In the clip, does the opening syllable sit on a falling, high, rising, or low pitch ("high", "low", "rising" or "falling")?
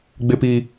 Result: high